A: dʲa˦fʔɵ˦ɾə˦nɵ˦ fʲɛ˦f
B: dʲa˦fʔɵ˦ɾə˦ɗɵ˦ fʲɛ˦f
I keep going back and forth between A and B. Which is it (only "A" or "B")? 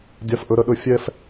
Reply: B